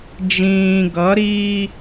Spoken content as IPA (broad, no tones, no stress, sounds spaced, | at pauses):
d͡ʒ ĩː ɡ ʌ ɾ iː